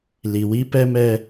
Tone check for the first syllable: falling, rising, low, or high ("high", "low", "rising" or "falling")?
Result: low